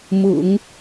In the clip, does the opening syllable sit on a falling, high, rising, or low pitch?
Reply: low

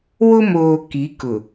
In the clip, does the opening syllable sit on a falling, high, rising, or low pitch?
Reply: high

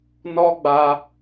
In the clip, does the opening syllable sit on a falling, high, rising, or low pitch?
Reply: high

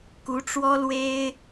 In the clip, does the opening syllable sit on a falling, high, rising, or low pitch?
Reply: rising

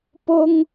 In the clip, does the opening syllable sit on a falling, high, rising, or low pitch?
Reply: high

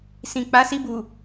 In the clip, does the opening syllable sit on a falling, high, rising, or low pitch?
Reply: low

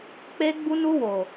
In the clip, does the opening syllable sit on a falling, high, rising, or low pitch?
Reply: high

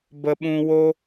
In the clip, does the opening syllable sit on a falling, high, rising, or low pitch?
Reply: high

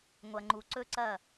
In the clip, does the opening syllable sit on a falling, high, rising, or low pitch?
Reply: low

